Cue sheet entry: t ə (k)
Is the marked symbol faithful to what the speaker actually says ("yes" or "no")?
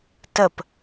no